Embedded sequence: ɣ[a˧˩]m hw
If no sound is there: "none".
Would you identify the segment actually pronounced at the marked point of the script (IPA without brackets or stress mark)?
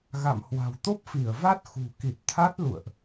a̰˧˨